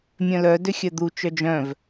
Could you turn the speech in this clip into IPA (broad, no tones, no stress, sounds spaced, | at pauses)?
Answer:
mʲ œ̃ l œ d ʏ xʲ œ d̪ u t͡ʃ œ d͡ʒ œ̃ v